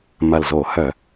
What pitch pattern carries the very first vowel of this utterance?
low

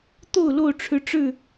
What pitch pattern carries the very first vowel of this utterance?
falling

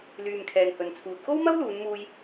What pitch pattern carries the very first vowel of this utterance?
low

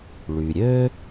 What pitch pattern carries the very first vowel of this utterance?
low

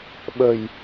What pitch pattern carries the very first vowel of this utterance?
low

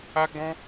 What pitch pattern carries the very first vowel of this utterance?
high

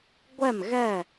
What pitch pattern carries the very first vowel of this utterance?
falling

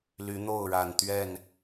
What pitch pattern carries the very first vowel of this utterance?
rising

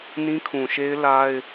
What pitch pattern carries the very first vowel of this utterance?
high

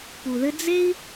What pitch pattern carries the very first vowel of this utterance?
low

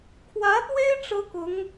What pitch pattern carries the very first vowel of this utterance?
rising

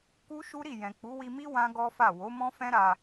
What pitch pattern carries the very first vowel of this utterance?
high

